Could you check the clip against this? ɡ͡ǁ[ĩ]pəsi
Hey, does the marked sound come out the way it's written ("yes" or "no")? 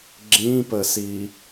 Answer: yes